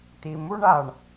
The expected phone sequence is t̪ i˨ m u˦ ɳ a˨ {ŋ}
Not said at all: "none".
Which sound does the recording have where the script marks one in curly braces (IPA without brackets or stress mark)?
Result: ɳ